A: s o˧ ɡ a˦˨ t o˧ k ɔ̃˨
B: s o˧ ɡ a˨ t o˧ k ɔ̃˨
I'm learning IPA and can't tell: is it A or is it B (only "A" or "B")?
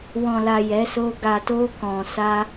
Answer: B